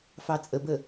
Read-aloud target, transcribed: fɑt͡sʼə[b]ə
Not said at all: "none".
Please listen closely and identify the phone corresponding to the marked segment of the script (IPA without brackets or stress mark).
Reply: b